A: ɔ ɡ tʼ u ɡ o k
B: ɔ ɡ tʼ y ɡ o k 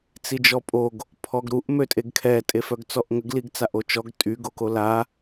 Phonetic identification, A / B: B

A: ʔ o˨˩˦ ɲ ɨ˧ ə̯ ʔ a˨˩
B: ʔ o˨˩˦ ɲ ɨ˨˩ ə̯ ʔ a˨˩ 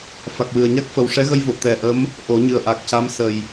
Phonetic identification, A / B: B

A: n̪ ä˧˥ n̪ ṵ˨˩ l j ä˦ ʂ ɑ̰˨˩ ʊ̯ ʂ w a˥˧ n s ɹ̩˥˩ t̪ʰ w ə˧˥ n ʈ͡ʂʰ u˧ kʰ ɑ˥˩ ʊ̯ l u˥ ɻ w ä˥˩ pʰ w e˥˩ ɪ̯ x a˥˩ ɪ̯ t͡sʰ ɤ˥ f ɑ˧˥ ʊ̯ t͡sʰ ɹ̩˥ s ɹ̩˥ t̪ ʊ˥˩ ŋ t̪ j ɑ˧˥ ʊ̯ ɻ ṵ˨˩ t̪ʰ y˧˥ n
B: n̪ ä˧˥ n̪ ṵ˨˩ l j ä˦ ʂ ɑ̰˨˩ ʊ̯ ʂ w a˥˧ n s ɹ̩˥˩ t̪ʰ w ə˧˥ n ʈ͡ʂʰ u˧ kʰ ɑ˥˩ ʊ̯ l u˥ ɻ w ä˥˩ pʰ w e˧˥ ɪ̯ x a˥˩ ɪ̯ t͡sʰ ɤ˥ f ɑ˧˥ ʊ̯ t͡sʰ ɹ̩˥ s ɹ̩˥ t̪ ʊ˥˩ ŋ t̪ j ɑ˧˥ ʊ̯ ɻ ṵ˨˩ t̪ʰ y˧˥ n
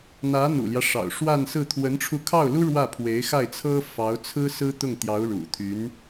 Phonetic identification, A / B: B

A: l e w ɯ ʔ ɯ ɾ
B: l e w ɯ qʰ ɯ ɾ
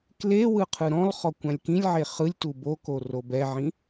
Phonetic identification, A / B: B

